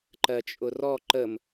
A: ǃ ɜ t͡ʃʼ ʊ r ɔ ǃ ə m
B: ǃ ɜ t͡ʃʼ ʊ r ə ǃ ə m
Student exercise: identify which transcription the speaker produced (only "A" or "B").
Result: A